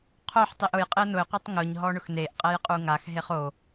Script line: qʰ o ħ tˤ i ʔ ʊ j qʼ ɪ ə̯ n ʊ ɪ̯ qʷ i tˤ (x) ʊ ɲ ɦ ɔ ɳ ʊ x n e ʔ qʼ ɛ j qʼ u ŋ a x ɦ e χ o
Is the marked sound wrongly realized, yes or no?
yes